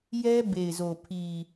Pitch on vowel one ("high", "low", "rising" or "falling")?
high